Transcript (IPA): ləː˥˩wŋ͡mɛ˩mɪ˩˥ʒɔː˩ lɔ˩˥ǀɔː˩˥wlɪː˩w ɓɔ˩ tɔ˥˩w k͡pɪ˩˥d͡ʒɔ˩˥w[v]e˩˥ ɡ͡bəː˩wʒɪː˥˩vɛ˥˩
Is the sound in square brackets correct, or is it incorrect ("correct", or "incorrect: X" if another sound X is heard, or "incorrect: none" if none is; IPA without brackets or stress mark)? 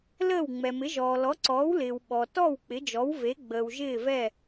correct